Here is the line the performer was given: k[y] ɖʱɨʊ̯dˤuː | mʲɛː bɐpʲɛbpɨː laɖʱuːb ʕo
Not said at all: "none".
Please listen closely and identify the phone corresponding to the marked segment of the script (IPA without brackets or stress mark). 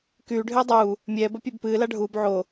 yː